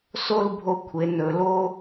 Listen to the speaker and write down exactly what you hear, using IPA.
s o˥˧ l bʱ o˧ kʷʰ e˩˧ n ɵ˩˧ l o˥

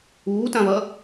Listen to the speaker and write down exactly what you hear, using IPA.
uː t ã β ɐ

